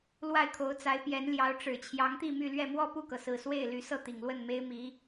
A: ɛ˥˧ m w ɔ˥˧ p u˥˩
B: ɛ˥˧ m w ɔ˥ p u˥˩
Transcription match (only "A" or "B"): A